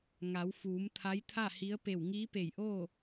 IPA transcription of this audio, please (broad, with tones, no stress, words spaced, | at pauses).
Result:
ŋa˩˧wfuː˩˧m t̪ʰa˧˥jt̪ʰa˥˨hi˧˥ə̯ pe˧˩wŋiː˧˥pe˧˩jʔoː˥˨